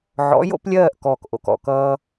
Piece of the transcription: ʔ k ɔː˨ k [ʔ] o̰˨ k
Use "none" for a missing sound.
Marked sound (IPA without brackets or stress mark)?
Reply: ʔ